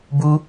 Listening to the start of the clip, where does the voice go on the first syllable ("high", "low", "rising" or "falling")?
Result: high